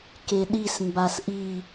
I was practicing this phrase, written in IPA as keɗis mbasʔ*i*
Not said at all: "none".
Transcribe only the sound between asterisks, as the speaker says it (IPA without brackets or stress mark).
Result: i